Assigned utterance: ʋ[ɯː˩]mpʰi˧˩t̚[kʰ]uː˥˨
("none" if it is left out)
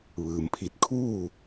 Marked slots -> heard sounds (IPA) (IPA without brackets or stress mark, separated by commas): ɯː˩, kʰ